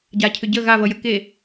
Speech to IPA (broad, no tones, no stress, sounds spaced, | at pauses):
ɟ a cʰ ʏ ɟ ə ɣ a v ʌ j ə k e